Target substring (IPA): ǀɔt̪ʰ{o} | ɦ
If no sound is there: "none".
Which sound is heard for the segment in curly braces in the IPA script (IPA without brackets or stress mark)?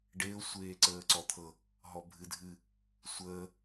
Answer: ɤ